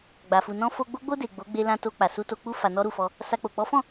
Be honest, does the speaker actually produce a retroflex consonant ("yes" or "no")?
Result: no